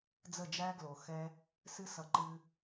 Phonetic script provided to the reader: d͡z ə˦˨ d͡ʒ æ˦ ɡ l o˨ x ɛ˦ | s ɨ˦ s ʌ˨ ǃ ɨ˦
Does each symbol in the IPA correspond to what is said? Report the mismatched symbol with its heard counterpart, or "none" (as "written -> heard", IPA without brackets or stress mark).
none